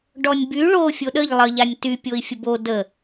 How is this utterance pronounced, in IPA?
ɖ ɔ nʲ b y ɭ o fʲ o ɗ ə ʎ lˠ ə ʎ a nʲ t y pʲ o i̯ fʲ ə b o d ə

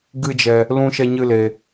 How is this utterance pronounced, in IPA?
ɡ ɨ˦ d͡ʒ ɛ˧ | l ũ˦ ʃ ɛ˦ ɲ ɨ˦ l e˧

